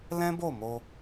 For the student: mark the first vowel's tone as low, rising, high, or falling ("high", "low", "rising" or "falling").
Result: high